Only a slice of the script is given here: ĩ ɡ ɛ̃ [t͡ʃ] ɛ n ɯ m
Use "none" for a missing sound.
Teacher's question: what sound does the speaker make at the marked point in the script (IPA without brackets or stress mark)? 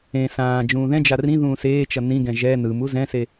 ʒ